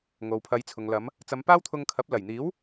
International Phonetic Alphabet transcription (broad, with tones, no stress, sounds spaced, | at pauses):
ŋ o˨ w pʰ ɐ˨˧ j t͡sʰ ʊ˨ ŋ l ɐ˨˧ m | t͡s ɐ˨˧ m p aː˥ w t̪ʰ ʊ˧ ŋ kʰ ɐ˨˥ p̚ l ɐ˨˩ j n̪ iː˨˥ w